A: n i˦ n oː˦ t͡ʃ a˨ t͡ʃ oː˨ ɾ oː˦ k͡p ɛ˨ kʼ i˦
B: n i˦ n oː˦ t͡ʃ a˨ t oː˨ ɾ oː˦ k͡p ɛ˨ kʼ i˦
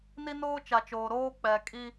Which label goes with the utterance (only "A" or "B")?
A